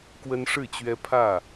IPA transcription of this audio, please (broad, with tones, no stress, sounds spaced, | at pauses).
k w ə˦ n ʂ ɻ̩˥˨ t͡ɕ ɥ ɛ˦ pʰ ä˥˨